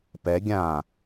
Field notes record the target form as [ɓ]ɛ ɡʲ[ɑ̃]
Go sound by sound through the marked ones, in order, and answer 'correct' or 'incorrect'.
incorrect, incorrect

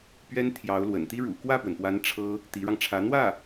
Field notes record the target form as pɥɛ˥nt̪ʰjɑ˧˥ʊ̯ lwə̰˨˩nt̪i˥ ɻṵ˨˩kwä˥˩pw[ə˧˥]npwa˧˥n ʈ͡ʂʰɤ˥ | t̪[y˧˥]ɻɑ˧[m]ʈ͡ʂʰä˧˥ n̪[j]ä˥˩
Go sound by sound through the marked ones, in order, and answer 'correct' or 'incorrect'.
incorrect, incorrect, incorrect, incorrect

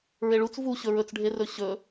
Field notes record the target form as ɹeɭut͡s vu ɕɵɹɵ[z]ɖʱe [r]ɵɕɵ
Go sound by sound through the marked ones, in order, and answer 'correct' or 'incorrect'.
incorrect, correct

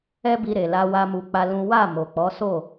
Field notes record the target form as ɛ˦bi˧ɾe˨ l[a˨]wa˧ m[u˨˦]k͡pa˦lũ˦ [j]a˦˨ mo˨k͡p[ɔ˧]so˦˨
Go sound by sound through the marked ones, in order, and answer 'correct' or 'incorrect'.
incorrect, incorrect, incorrect, incorrect

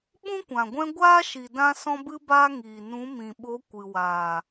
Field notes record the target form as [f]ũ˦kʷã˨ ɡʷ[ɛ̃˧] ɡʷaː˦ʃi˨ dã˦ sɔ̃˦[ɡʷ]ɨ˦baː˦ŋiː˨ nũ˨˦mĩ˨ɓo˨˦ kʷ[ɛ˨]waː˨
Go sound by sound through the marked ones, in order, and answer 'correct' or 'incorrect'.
incorrect, correct, incorrect, incorrect

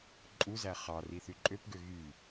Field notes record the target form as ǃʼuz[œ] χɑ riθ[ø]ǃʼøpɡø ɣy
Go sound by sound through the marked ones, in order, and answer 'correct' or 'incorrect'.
incorrect, incorrect

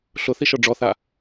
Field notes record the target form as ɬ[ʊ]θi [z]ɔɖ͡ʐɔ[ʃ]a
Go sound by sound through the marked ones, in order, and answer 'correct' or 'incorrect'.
correct, incorrect, incorrect

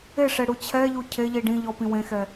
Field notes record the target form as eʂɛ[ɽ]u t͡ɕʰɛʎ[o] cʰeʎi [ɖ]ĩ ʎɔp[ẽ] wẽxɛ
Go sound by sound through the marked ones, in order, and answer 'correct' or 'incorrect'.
correct, incorrect, correct, incorrect

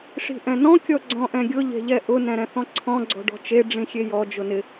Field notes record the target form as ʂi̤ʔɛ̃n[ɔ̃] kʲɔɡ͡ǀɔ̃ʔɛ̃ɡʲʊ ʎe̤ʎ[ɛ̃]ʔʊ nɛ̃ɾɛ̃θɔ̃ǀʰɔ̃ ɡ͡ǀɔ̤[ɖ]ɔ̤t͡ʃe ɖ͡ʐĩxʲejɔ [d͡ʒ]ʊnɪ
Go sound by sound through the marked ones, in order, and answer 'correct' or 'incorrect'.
correct, incorrect, correct, correct

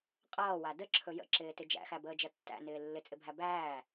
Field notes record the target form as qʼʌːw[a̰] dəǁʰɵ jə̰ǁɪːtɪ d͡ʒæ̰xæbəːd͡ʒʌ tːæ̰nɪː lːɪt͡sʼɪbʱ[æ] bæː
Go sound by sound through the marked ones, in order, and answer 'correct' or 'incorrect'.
incorrect, correct

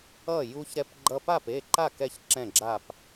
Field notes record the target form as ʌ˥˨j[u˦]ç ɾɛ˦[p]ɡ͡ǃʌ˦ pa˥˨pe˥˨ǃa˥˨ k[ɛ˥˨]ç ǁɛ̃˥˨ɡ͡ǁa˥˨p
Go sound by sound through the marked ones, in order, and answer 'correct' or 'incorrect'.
correct, correct, correct

